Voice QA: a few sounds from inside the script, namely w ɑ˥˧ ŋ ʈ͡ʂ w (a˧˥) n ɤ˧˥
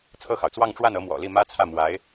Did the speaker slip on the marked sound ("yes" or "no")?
yes